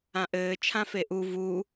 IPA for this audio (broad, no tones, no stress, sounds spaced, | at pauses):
ã ʔ ɘː t͡ʃʰ ã f e ʔ u v u